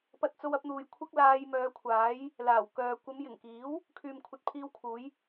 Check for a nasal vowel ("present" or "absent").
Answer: absent